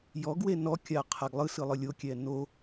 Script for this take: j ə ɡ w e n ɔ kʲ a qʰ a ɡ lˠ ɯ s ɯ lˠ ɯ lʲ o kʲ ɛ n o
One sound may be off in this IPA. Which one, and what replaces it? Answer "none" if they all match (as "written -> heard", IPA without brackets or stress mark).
ə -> ɔ